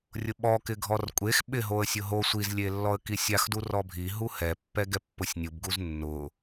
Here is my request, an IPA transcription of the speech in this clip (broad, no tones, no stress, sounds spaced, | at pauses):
rʲ ʊ ɓ ɔ k ɪ ɡʱ ɔ r kʷʼ e x ɓ ɪ ɦ o ə̯ sʲ ʊ ɦ o sʷ i z lʲ e lː ɔ ə̯ k i sʲ a x d u r ɔ bʱ i ɦ u h ɛ pː ɛ ɡ ɛ pː ʊ sʲ nʲ u b ɡ u z nː ʊ